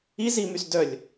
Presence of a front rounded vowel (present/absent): present